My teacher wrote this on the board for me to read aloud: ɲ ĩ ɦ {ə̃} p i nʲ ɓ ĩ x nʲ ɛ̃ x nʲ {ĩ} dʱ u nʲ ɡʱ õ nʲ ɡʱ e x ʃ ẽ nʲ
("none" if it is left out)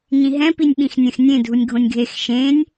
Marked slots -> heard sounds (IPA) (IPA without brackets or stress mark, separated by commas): ɛ̃, ẽ